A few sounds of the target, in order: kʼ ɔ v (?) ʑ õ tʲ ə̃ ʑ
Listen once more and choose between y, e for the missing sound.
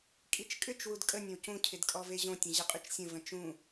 e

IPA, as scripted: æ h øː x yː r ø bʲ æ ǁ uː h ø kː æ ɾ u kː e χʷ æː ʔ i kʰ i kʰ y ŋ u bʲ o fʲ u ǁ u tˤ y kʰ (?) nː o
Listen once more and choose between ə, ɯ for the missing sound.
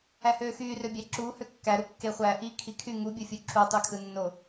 ɯ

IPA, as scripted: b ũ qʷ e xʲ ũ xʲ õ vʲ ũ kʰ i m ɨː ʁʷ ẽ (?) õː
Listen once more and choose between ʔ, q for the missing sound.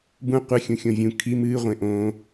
ʔ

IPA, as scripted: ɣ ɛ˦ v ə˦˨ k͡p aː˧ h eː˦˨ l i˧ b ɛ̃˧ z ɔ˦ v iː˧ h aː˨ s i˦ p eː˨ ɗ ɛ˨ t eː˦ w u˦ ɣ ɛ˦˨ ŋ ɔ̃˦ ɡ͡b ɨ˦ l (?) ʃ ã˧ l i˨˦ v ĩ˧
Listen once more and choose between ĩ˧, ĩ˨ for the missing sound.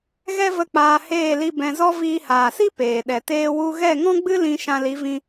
ĩ˧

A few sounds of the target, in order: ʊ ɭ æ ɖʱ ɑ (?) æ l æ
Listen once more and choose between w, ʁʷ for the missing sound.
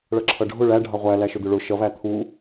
ʁʷ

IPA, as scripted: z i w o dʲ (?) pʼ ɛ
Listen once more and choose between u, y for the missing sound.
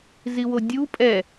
u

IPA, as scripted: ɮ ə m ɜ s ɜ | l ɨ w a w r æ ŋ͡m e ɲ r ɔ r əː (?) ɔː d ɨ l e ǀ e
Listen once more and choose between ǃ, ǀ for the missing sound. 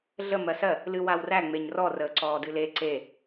ǀ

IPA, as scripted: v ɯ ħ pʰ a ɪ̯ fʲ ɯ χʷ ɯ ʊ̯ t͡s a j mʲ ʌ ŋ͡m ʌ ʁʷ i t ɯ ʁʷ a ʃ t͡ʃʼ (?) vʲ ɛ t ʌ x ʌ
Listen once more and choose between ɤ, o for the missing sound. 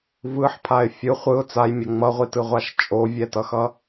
o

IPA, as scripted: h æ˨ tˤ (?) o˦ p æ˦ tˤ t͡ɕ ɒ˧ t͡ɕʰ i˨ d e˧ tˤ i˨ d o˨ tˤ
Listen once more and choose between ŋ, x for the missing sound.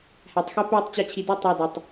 x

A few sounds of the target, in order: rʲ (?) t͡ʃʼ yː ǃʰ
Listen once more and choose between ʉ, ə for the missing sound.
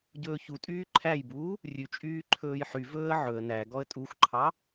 ʉ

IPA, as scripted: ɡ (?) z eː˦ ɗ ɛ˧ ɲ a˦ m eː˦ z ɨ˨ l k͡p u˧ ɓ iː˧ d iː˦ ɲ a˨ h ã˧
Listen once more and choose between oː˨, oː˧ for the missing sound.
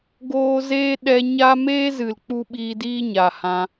oː˧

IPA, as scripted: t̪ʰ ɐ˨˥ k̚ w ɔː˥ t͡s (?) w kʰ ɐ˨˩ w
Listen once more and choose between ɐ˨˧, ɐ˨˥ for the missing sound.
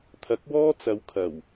ɐ˨˧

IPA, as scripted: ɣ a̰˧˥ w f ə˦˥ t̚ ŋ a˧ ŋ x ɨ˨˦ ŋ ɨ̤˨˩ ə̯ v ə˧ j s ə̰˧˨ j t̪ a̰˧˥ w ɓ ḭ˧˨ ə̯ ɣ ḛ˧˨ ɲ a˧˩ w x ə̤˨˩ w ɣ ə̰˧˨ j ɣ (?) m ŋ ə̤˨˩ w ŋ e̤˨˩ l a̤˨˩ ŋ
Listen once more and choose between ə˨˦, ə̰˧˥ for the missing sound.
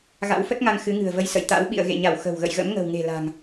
ə̰˧˥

